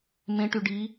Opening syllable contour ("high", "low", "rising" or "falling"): rising